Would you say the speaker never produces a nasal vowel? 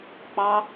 yes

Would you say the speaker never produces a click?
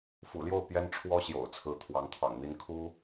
yes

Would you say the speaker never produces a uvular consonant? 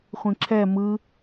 no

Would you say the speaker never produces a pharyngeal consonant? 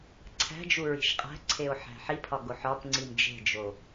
no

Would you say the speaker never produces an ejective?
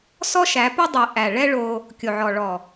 yes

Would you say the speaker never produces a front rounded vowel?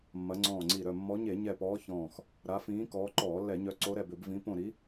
no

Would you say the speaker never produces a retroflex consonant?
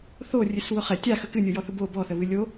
yes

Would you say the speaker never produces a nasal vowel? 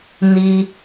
yes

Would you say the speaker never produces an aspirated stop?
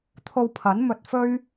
no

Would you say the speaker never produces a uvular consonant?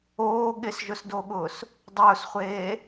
no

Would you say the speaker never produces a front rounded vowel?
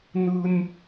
yes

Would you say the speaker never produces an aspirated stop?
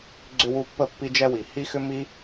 yes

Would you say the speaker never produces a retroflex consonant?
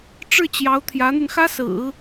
no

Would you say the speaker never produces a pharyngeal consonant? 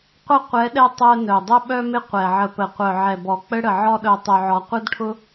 no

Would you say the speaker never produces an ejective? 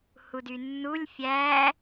yes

